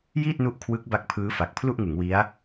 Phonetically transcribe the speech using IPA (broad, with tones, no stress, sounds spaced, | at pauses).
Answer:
j iː˥˩ t̚ n u˦˥ ʔ kʰ w ɯ˦˥ k̚ b a˦˥ k̚ pʰ ɯː˦˥ f a˨˩ k̚ pʰ l u˥˩ ʔ ŋ ɯ˩˦ ŋ w i˦˥ a̯